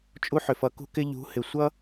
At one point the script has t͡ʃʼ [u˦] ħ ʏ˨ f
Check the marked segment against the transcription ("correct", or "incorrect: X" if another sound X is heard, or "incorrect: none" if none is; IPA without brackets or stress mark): correct